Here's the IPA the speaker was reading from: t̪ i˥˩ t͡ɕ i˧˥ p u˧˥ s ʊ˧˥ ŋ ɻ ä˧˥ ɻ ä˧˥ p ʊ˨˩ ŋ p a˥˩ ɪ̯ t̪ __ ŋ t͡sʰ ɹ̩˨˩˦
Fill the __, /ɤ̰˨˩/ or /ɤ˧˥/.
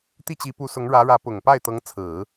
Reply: ɤ˧˥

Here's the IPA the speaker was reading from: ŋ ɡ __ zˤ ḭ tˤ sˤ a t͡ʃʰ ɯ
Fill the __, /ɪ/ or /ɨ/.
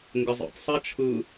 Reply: ɪ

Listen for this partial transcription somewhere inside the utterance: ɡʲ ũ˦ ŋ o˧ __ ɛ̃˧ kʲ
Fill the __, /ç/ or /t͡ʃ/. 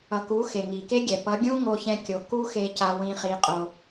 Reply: ç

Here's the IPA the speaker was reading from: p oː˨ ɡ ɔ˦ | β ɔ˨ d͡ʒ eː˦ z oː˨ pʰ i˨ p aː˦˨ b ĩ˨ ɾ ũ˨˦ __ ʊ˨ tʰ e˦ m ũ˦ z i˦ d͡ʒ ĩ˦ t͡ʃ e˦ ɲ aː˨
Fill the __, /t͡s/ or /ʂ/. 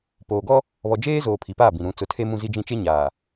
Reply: t͡s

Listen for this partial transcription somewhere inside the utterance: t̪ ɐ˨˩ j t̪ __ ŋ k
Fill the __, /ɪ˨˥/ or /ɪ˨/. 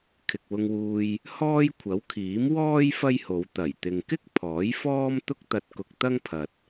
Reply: ɪ˨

